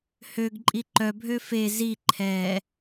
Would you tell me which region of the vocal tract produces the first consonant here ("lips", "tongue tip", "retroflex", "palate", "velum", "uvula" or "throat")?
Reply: throat